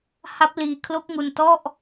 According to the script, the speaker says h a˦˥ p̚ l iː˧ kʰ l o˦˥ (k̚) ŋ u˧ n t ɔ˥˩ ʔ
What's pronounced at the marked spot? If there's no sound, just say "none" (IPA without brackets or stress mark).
k̚